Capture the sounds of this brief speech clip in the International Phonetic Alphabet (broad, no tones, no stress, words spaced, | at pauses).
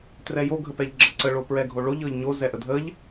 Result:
trɛjo ɡʱəpɛʎɡ͡ǁəǀə ɭopɹɛɡʱoɭoʎ ɤʎɲo zɛʔədʱəʎ